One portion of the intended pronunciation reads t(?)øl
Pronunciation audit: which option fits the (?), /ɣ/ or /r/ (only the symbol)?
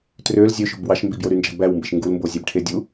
r